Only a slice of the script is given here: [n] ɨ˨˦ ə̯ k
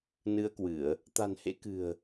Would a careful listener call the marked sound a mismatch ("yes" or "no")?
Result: no